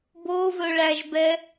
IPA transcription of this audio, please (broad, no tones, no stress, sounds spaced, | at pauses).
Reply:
b o v ɵ ɭ æ ʒ b ɛ